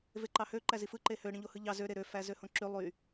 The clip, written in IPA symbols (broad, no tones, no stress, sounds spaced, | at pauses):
v e ǃ ɑ h ø ǃ æ z i f ɯ ǃ e h ø ɽ ĩ ʎ o h ɯ ʎ ɑ z ø ɾ e ɾ ø f æ z ø h õ ǁ y lˠ y